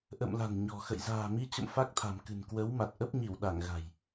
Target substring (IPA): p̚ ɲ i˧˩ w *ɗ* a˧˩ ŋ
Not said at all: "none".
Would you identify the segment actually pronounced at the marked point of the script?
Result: ɗ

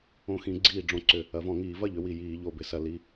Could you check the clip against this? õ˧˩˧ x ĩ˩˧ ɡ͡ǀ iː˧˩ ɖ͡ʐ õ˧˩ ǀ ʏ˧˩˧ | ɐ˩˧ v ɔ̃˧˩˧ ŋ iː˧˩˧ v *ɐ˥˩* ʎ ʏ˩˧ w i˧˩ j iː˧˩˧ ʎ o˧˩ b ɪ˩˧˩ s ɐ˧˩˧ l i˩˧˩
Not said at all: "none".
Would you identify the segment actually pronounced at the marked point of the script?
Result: ɐ˥˩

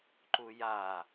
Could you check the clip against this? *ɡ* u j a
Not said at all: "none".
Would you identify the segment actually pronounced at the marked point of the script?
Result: ǃ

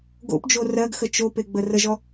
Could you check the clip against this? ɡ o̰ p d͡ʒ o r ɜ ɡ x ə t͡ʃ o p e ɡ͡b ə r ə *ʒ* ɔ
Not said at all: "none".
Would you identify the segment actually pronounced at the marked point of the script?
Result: ʒ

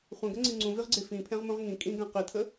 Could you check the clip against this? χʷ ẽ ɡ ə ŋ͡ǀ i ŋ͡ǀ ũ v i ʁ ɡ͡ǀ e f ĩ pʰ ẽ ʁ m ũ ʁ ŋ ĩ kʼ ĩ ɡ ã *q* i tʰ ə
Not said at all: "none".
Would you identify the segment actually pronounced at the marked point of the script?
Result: q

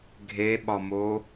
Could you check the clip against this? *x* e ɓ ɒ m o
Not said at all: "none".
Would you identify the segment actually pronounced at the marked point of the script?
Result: ɡʱ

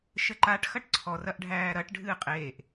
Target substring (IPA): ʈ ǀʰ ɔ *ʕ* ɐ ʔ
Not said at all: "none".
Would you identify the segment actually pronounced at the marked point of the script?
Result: r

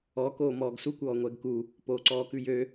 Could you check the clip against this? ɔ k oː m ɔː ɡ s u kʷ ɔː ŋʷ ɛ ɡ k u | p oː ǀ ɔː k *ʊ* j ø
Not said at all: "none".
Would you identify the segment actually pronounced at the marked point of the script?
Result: ʉ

